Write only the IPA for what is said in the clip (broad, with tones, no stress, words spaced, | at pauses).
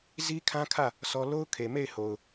zi˦kʰã˦kʰä˦˨ | sɔ˦ lo˦ʊ̯kʰe˨ me˦˨ɪ̯ho˨ʊ̯